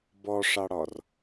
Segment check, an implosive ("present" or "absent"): absent